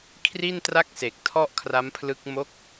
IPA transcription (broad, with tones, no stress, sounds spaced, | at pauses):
kʰ r i˥˩ n t r a˥˩ k̚ s e˨˩ k̚ tʰ ɔ˥˩ ʔ kʰ r a˦˥ m pʰ l ɯ˦˥ k̚ m o˦˥ k̚